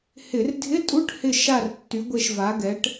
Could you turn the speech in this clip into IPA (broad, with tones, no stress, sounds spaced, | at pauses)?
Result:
h ɪ˧˩˧ r dʱ ɪ˧˥˧ tʼ u˧˥˧ ʈ h ɪ˦˨ ʃ a˦˨ r tː y˨˥ ɡʷ e˦˨ ʃ v a˨˥ ɡ ɛ˨˥ ʈ